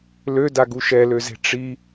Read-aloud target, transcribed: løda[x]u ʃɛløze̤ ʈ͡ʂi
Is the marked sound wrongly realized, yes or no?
yes